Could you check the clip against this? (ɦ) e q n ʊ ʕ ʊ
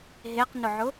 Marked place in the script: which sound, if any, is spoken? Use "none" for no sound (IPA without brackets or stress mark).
ɦ